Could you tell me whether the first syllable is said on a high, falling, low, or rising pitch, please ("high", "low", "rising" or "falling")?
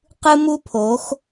high